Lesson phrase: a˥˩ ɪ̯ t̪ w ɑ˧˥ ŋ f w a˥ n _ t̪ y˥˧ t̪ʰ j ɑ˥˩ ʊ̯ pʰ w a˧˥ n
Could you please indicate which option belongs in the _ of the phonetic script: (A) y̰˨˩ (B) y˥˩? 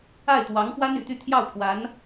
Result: A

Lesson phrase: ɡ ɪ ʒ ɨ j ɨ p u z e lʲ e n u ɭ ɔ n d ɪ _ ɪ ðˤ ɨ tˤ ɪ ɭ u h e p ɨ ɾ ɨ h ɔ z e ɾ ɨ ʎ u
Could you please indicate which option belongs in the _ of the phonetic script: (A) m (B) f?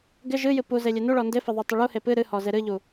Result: B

